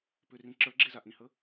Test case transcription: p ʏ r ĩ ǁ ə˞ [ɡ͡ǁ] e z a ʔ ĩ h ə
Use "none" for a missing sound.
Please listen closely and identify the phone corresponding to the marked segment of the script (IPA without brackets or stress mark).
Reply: ɡ͡ǁ